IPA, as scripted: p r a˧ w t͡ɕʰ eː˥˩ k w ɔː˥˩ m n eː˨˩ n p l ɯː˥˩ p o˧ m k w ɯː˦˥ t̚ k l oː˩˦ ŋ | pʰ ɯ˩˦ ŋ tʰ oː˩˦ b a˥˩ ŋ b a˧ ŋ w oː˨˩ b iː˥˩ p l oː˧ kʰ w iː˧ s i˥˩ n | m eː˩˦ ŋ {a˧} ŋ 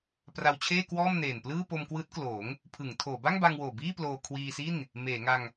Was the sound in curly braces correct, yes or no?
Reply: yes